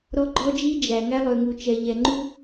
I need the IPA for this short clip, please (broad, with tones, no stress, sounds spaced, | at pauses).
ɾ ɔ˦ ɡ͡ǃ ɔ˦ d͡ʒ i˦ d͡ʒ æ˨ ŋ æ˦ lˠ ø˨ ŋ u˨ t͡ʃ ɛ˨ ʎ ɛ˨ ŋ͡ǃ u˦